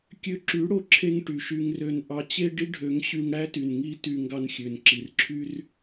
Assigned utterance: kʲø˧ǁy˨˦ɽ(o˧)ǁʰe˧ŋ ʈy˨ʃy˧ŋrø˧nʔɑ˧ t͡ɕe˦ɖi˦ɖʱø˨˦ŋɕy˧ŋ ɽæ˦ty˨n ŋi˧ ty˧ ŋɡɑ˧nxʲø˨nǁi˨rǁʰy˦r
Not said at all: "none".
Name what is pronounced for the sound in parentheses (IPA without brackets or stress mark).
o˨